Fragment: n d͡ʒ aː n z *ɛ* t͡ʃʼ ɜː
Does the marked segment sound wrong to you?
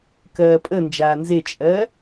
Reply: yes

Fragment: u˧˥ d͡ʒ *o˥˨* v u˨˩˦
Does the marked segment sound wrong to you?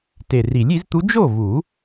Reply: no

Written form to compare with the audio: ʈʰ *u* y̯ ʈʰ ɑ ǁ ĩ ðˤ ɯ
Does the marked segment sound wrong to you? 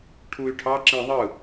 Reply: no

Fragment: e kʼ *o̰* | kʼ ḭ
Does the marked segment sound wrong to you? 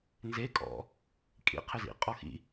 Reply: yes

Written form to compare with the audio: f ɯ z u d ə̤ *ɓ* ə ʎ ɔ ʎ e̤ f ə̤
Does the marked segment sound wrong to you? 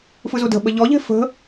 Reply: no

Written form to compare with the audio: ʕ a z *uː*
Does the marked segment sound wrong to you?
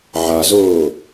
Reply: yes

